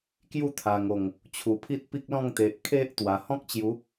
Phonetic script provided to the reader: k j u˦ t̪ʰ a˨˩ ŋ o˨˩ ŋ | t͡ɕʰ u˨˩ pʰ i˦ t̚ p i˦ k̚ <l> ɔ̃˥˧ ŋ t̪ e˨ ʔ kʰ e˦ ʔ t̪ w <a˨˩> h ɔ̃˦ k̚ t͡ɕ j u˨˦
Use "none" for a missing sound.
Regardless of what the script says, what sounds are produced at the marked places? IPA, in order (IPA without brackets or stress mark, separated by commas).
l, a˨˩